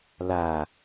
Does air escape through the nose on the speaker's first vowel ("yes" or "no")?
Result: no